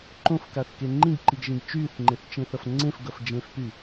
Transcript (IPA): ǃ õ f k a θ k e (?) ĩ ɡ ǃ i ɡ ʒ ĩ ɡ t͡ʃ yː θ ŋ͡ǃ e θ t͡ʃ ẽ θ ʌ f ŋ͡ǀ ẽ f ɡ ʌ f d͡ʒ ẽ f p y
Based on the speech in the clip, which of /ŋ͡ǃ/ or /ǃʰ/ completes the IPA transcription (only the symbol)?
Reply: ŋ͡ǃ